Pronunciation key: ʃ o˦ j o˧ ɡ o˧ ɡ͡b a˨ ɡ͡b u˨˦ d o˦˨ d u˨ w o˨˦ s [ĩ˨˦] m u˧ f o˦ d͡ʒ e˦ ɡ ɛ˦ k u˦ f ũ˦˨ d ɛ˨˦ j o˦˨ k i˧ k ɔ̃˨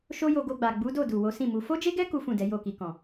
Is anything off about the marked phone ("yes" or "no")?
yes